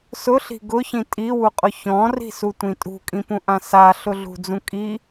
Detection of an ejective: present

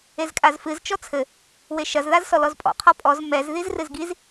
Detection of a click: absent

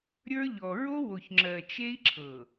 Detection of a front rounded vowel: absent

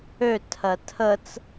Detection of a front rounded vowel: present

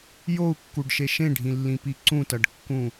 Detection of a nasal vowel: present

